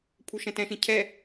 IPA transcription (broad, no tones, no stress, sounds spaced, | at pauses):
pʰ u ʃ ɛ̃ t ɛ̃ ʃ ĩ cʰ ɛ